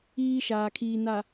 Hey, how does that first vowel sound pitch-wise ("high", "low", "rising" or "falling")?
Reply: high